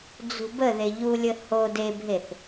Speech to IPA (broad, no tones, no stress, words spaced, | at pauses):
d͡zṳbəðe ʎulʲə ho debʱeθ